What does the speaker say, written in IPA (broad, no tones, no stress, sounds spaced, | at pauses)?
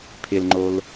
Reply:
pʰ ɪ l ŋ͡ǃ o l